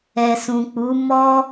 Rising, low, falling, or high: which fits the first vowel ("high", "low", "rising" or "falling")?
low